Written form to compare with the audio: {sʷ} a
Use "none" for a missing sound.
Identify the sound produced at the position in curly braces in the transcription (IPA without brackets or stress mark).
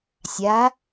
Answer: sʲ